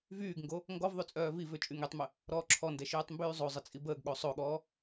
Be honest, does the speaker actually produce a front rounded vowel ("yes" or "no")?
yes